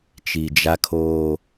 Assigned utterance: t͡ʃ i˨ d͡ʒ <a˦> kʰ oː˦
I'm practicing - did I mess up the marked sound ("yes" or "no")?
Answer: no